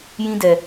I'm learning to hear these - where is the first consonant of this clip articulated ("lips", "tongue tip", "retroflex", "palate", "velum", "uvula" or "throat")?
palate